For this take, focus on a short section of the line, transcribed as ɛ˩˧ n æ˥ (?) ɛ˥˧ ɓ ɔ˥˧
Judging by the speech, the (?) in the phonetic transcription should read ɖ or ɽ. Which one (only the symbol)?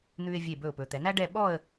ɖ